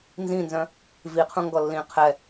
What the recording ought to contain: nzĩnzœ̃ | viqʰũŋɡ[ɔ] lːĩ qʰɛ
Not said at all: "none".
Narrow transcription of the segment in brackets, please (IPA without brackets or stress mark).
ɔ